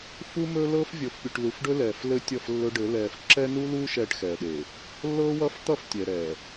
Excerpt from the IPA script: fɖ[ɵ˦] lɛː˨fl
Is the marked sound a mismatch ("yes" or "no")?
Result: no